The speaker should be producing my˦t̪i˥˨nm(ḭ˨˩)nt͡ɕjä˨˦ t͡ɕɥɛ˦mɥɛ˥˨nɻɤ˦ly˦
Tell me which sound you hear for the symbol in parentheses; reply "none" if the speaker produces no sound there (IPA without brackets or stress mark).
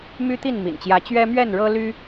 ḭ˨˩